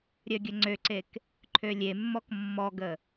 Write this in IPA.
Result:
ɾʲ œ ɡʲ ə ŋ͡ǀ ø ǀ e k | ǃʰ ø lʲ e mː ɔ k mː ɔ ɡ ə

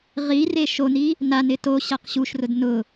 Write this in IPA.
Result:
ʁ i r e ʃ o n i | n a n ɪ t o ɕ a q ɕ u ʃ r ʊ d n ʊ

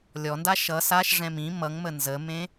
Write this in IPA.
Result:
lʲ ɔ n d a ʃ ʌ s a ʃ ʐ ɛ̃ m ĩ m ʌ ŋ m ə n z ə m ẽ

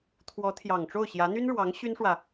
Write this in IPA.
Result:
t̪ʰ w ɔ˧˥ t̪ʰ j ɑ˨˩ ŋ ʈ͡ʂ o˥˩ ʊ̯ ɕ j ä˧˥ n̪ y˥ n ɻ w ɑ˧˥ ŋ ɕ y˥ n ʂ w ä˨

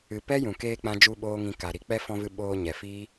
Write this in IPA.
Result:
ɨ˧ p ɛ˦ j ũ˨ k eː˧ k͡p ã˦ d͡ʒ u˦ ɓ oː˦ ŋ ĩ˧ k a˨ ɾ i˧ k͡p ɛ˦ f ɔ̃˧ v ɨ˧ ɓ oː˧ ɲ ɛ˨ f iː˦

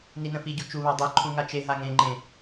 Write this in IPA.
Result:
n i n ə̃ f i ɟ u t͡ʃ u β a dˤ i ǃʰ ũ ŋ a t͡ʃ e ɦ a ŋ ẽ ŋ͡ǃ ẽ

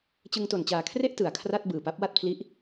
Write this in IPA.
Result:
t͡ɕ ɯ˧ ŋ t o˨˩ n t͡ɕ aː˨˩ kʰ r e˥˩ ʔ t ɯ˩˦ a̯ kʰ r a˥˩ t̚ b ɯː˨˩ p a˦˥ p̚ w a˥˩ t̚ pʰ l i˦˥ ʔ

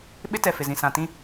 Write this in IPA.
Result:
ɓ ɪ˦ t ɛ˨ f ɪ˨ z ĩ˨ s ã˨ t ĩ˦

